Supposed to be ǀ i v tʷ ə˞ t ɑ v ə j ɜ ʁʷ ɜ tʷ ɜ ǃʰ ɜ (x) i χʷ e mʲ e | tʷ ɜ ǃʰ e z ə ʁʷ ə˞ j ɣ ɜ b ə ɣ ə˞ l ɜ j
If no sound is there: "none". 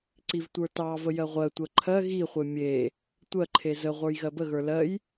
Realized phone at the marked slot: ɣ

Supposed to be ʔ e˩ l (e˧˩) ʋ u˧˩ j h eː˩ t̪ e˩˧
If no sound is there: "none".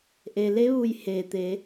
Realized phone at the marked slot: e˧˥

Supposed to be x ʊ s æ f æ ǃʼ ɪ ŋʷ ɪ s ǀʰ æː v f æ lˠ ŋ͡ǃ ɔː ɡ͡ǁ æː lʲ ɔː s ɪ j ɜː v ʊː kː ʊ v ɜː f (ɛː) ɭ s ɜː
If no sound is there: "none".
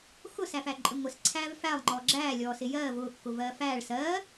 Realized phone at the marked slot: æː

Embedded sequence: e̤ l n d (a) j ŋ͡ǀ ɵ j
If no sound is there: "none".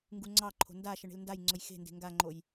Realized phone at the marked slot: a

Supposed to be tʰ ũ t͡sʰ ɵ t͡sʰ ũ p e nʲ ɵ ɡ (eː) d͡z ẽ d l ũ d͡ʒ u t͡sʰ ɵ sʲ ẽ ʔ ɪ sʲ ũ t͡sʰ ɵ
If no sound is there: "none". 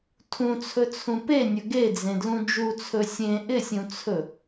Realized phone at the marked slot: e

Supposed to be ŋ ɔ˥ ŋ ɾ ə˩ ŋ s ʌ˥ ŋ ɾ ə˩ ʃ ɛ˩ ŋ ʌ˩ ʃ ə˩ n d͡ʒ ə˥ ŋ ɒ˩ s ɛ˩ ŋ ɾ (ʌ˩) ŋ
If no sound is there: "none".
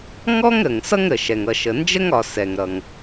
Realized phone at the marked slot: ʌ˩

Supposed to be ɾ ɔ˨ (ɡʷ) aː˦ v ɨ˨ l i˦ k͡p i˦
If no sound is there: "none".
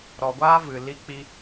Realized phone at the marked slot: ɡʷ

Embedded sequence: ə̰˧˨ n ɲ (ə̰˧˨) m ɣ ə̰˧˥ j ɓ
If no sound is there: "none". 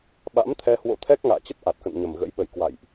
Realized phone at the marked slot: ə˨˩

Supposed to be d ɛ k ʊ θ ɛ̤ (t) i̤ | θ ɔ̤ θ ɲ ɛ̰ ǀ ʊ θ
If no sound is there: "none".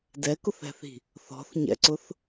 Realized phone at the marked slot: θ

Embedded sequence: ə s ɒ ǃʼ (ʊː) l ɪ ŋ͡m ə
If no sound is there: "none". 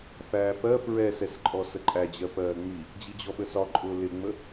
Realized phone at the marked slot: ʊː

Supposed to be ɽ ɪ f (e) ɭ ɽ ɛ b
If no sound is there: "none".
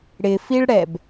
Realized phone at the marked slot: i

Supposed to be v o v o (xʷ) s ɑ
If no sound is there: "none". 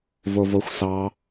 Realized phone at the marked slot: xʷ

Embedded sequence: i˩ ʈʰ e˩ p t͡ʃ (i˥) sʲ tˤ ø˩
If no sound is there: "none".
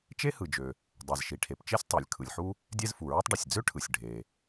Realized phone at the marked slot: e˥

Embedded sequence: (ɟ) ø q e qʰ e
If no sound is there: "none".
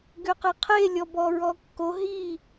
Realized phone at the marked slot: ɡ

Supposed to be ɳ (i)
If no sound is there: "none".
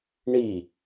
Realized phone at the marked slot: i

